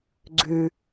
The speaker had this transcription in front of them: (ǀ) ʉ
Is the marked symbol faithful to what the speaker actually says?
no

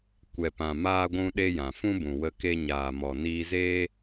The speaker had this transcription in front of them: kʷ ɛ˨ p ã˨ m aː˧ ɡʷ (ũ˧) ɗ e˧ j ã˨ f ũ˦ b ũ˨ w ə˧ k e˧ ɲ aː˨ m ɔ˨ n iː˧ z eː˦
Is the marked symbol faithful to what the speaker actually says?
yes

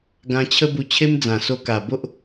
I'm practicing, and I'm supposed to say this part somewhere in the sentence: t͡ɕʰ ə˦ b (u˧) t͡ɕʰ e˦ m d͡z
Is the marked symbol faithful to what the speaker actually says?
yes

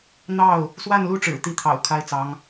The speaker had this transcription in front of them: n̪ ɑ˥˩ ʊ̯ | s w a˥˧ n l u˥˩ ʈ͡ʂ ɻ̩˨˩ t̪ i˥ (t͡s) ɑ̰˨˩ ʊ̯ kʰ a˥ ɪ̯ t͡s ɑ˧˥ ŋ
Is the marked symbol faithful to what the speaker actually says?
no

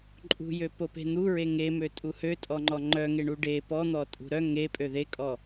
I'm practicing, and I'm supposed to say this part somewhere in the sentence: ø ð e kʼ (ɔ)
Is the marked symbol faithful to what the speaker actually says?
yes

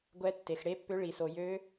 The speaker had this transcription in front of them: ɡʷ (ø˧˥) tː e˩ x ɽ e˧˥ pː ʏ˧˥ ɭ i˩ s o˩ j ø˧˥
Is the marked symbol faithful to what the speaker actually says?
no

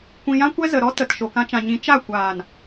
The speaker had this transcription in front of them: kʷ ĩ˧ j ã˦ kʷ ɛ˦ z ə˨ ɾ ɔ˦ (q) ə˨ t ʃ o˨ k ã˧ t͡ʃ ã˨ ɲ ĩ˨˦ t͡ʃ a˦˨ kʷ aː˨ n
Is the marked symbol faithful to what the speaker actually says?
no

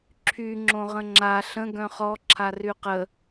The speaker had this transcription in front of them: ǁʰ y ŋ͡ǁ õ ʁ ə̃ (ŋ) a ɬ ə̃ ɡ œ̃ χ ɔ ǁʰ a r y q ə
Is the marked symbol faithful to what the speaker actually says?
no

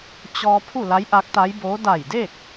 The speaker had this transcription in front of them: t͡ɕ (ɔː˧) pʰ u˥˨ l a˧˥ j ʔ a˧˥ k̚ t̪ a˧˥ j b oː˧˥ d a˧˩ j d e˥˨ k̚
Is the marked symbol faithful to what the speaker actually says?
yes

